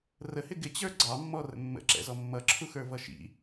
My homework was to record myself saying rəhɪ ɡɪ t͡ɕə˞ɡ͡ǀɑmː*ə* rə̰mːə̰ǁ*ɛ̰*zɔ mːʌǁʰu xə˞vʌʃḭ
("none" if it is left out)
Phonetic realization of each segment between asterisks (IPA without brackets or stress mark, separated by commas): ɔ, ɛ̰